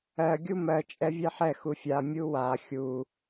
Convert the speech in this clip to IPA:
ɜ ɡʲumɜ t͡ʃʼɛvʲɛħɛ xufʲa mʲuwa xʲu

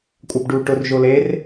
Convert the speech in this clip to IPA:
kʷʼabɖu ʈʊr ʒoler

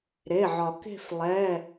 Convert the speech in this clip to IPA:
ɾe˩˧˩ʕɒ˩ke̤˦˨f lˠɛ˩˧˩

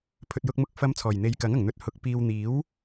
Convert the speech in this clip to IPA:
pʰɵ˨t̚jʊ˧k̚mʊ˧k̚ fɐ˨˧m t͡sʰɔː˨˩jn̪e˨˧jkɐ˨˥ŋɐ˨˩ŋ n̪ɵ˧t̚hʊ˨˥k̚ piː˨wn̪iː˨˥w

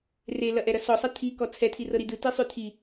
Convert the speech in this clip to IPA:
relɐʔɛɾɐ sɔsˤɐ t̪ʰikɔ t͡sʰɛtʰirɤɾi dɯtisˤʉ tʰi

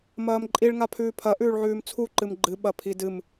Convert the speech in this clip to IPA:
mɐːmǃʼiɭ ŋapʰʉːpʰɐ ʔʉːɭʕʉːmt͡sʰu ǃɨmɡ͡ǃɨ ɓɐpʰidɨm

